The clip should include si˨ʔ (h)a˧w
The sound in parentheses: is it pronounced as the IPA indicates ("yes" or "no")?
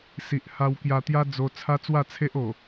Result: yes